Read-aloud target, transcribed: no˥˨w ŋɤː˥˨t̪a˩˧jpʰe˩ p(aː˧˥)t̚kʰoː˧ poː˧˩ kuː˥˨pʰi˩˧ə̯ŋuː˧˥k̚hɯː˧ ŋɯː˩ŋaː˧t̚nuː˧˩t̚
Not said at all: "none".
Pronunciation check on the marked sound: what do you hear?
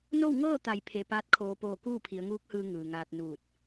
aː˧˥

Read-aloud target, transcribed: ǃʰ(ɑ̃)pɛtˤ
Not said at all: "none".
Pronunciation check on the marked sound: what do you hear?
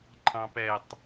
ɑ̃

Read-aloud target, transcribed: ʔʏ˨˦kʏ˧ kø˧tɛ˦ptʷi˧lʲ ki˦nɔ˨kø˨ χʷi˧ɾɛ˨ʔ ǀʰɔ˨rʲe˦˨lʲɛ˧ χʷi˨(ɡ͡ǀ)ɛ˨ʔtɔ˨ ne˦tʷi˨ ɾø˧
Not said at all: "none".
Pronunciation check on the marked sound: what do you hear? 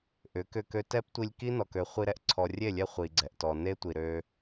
ɡ͡ǀ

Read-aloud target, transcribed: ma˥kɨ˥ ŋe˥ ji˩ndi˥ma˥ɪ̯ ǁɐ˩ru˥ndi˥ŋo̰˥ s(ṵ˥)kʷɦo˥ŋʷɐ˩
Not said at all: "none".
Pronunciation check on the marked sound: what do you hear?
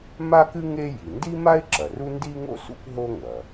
ṵ˥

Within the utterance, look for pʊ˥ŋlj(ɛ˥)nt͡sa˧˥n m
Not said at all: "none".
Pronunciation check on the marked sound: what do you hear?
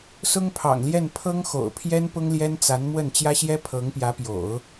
ɛ˥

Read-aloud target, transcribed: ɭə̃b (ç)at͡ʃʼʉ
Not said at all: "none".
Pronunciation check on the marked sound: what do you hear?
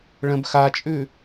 x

